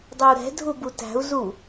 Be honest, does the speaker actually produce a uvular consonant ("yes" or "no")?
no